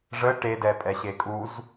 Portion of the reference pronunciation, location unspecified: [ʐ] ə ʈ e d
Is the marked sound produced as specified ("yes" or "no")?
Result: yes